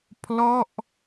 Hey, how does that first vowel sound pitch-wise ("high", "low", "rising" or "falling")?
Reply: falling